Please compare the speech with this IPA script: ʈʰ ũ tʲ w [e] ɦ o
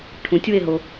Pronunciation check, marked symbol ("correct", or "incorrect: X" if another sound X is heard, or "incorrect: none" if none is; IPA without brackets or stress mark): correct